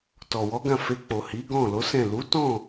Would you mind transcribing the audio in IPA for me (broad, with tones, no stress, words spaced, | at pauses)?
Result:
tɔ˨ wɔ˨˦ɡã˦˨ fe˧k͡po˨ hi˨˦ ɡɔ̃˦˨lo˨˦sɛ̃˦˨ lu˨˦tɔ̃˦˨